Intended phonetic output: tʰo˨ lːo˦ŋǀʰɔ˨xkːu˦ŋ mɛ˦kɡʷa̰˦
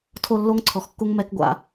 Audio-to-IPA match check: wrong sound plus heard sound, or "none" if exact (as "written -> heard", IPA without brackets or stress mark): none